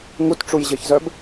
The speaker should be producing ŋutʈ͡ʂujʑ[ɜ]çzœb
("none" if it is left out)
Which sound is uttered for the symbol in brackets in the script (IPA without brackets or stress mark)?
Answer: ɜ